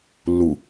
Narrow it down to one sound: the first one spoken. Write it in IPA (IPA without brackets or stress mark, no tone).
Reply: lː